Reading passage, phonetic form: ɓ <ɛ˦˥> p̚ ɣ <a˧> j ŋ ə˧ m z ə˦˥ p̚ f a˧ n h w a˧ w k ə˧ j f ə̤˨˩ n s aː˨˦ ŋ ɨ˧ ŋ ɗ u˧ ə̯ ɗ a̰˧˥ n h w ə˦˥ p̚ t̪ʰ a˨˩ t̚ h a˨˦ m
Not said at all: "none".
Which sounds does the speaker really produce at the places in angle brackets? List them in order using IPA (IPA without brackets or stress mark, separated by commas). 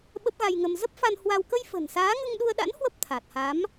ə˦˥, a˧